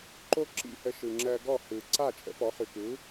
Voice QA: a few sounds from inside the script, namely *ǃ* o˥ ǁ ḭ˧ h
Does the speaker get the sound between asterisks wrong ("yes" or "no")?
no